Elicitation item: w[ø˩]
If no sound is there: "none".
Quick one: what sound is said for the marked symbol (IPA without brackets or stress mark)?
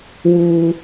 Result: u˩